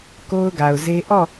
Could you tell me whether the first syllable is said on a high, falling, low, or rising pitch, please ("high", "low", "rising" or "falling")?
high